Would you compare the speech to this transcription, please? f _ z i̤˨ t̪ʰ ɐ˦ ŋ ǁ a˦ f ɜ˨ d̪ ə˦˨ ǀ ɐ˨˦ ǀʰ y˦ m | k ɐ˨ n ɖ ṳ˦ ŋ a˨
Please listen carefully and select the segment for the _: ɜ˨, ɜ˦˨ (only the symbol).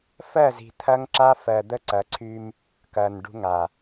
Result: ɜ˦˨